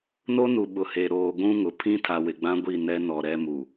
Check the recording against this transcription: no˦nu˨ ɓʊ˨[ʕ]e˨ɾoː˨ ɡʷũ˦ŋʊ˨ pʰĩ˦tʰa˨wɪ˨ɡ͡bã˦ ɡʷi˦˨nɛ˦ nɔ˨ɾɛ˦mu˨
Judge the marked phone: incorrect: h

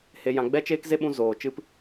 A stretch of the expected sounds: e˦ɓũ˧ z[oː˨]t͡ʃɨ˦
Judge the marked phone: correct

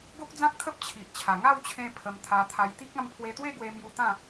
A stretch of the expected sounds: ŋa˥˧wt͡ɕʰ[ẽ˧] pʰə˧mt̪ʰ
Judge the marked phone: correct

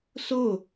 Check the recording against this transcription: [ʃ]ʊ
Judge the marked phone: incorrect: s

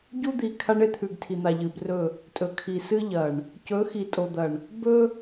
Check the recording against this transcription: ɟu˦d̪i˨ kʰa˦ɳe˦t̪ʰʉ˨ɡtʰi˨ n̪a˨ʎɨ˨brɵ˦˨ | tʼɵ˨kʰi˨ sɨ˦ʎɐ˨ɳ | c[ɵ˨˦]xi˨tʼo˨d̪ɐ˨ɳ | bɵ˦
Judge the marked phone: correct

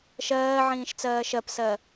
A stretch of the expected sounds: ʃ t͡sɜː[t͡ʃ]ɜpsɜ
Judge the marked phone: incorrect: ʃ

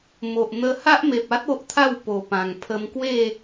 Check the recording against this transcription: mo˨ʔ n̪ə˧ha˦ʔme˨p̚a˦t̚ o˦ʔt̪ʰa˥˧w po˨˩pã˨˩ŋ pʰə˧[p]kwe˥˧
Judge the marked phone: incorrect: m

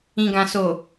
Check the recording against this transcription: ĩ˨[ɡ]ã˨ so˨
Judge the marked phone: correct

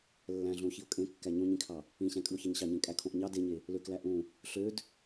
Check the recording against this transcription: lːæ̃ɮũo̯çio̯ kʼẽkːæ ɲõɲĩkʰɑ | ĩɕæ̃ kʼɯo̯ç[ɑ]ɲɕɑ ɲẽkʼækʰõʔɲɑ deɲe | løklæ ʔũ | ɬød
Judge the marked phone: correct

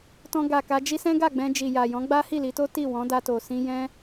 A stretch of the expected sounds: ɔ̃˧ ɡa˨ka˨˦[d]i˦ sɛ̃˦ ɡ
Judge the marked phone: incorrect: d͡ʒ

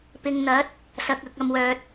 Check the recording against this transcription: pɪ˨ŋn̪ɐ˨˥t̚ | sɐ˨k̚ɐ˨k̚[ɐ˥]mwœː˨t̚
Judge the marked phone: incorrect: ɐ˨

